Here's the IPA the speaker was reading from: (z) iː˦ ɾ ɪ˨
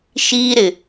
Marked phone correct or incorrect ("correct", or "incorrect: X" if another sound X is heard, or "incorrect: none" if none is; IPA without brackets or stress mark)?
incorrect: ʃ